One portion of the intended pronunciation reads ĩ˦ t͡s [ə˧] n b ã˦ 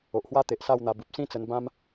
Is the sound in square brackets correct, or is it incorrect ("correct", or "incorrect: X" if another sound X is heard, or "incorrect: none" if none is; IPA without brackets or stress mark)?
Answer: correct